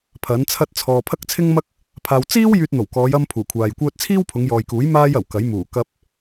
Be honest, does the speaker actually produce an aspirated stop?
yes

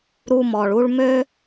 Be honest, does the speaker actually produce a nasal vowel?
no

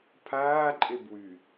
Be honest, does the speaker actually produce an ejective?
yes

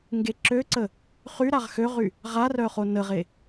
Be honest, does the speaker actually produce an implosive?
no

